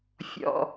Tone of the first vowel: low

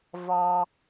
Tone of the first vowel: low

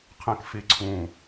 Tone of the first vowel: low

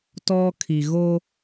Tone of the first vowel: high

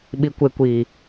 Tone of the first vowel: low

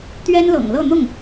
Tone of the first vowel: high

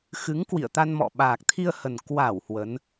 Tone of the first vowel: rising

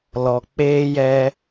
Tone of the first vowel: low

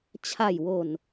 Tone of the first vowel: low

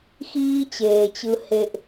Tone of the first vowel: high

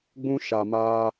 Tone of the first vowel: high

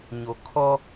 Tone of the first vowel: low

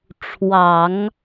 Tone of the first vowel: low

